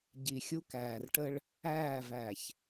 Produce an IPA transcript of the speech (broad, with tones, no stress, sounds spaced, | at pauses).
ɟ i˨ xʲ u˦ k æː˨ r ʈ ə˦ ɭ | æː˦˨ v æ˨ ç